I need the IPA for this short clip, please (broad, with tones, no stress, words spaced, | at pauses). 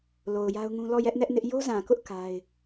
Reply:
lo˨ʊ̯ja˦ʊ̯ŋũ˦ lɔ˦˨jɛ˦ʔnɛ˦ʔnɪ˦ʔ jo˦zã˨kʊ˦ʔ ka˦ɪ̯